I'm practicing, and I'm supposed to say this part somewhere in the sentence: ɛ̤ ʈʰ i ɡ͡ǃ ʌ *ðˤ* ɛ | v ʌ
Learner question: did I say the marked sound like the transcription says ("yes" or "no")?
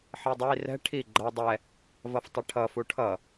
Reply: no